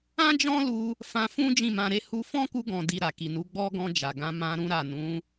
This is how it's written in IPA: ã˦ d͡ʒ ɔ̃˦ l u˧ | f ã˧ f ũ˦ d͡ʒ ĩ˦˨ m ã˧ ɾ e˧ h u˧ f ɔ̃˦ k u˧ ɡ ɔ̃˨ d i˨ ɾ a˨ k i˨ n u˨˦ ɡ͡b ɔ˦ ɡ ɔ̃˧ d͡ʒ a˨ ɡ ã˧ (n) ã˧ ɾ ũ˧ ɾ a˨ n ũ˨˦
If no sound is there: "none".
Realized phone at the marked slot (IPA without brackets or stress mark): m